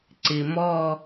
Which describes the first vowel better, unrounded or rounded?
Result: unrounded